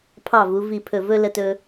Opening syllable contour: falling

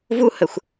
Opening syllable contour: high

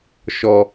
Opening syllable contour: low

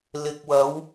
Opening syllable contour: low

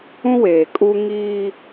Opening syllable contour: high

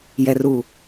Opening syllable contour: low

